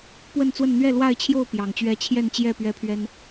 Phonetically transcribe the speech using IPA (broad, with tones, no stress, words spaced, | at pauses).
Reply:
pwə˥˨nt͡swə˥˨n n̪ɥɛ˥˨lwa˥˨ɪ̯t͡ɕʰjo˥˨ʊ̯ pjɑ˨˩ŋt͡ɕɥɛ˦ t͡ɕʰjɛ˥˨nt͡ɕjɛ˥˨ pɥɛ˦pʰɥɛ˦n